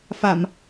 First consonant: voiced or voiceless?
voiceless